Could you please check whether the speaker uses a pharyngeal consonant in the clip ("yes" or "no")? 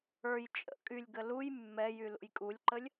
no